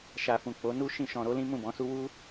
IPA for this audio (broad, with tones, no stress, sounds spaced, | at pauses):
ʃ a˨ f ũ˨ k͡p o˨˦ n u˦ ʃ ĩ˦˨ ʃ ɔ̃˧ ɾ o˦ l ĩ˦ m ũ˦˨ b ɔ̃˨˦ s u˦ w u˦